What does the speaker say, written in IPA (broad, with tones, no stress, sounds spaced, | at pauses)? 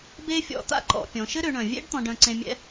b e˥ fʲ ɔ̰˧ t̪ a̰˧˥ ǃ ɔ̰˩˧ pʲ ɔ̃˩˧ ʃ ɘ˥ ɾ ø˩˧ ɳ œ̃˩ vʲ ḛ˥ ɖ t̪ ɔ̃˧ ɖ œ̃˧ ǀ ẽ˧ mʲ ɛ̰˧˥